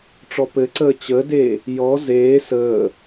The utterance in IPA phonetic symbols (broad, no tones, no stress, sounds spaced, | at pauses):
ʈ͡ʂ ɔ p ɘ ǀ əː t͡ɕ ə d eː | j ɔ z eː s əː